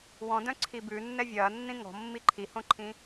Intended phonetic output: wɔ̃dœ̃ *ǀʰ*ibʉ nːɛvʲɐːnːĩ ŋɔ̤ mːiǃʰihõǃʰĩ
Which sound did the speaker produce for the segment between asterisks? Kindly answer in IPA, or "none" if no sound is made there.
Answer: ǀʰ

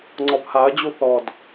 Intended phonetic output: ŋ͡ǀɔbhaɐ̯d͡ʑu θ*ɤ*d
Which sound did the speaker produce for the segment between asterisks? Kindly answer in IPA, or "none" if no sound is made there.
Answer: ɔ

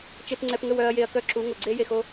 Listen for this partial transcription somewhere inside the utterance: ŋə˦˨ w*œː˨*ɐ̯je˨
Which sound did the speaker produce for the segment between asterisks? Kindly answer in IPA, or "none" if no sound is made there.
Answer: œ˨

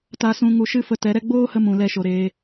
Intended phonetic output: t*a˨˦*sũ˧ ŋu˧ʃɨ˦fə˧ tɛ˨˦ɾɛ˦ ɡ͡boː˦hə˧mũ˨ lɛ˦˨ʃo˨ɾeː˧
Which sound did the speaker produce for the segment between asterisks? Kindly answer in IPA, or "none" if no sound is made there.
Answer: a˧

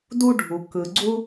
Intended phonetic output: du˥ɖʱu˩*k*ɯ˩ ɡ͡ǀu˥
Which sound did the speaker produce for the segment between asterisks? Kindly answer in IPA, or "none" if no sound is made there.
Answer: k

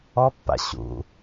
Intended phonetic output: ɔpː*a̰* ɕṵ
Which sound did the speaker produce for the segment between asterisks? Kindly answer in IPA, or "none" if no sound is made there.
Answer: a̰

